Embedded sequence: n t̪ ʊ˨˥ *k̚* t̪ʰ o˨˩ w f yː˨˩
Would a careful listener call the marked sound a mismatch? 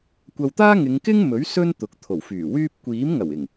no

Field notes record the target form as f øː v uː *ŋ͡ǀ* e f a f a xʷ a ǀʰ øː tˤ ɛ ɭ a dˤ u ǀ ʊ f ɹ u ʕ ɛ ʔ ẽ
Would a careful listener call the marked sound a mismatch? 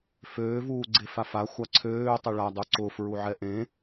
yes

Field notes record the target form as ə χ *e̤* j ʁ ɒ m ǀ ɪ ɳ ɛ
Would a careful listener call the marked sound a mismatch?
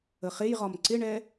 yes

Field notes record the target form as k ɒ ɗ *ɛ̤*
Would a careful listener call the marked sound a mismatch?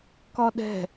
no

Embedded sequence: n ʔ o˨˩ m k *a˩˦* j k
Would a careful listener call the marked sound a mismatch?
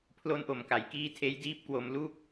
no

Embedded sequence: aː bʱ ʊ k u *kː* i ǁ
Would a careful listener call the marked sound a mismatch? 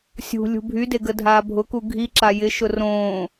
yes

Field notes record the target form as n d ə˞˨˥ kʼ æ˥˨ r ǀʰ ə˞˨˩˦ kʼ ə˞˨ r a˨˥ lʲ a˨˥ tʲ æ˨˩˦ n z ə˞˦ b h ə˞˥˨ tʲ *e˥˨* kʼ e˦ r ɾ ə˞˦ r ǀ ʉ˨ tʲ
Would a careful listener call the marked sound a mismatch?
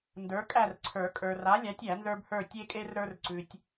yes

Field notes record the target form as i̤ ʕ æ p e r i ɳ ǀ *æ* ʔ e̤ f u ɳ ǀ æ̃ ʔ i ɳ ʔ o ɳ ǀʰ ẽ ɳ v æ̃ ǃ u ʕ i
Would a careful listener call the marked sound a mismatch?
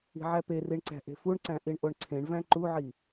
yes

